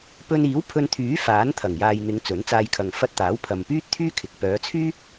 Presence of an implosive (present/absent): absent